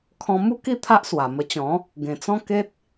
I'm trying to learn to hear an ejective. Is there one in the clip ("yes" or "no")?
no